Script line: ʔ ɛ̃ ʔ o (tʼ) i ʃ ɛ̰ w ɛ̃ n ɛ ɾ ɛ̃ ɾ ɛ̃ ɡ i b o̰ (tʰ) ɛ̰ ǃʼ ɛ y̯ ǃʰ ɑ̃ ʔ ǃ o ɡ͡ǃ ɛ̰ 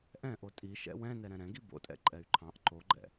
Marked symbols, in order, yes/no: yes, no

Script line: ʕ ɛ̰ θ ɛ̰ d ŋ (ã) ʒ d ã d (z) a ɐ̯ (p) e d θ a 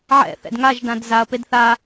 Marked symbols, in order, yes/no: no, yes, yes

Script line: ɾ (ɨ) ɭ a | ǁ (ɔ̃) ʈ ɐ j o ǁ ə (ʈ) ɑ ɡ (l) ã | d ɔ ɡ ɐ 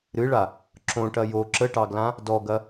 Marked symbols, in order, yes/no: yes, no, yes, yes

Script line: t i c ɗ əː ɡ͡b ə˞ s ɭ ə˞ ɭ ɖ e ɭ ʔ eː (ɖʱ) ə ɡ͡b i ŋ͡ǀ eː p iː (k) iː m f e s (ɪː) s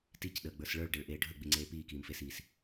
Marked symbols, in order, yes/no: yes, yes, no

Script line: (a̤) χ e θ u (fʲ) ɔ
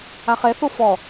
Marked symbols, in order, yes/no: no, no

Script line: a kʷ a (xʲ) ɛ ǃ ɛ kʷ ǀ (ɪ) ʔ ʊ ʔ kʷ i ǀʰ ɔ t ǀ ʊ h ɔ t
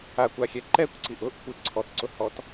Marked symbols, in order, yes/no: yes, no

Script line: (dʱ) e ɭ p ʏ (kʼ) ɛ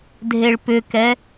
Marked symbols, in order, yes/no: yes, no

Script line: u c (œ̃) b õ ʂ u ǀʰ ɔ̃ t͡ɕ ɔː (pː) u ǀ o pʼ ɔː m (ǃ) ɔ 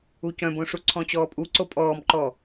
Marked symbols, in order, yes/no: yes, no, yes

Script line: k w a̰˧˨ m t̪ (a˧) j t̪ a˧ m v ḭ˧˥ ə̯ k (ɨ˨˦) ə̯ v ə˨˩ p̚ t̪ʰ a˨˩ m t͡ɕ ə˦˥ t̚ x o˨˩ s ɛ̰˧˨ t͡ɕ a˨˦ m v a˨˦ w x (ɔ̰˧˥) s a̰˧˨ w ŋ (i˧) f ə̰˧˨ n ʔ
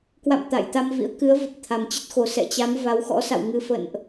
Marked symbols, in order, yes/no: no, yes, yes, no

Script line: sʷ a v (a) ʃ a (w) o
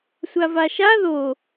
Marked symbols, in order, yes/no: yes, no

